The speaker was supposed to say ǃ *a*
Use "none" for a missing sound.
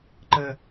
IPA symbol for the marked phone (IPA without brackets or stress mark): ə